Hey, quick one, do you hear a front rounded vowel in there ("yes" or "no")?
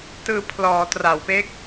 no